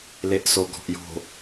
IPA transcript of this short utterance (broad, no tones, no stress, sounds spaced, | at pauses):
l e ʔ s o ɡ ɔ̤ ʔ j o̤